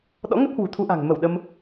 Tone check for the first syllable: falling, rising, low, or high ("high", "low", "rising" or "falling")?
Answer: rising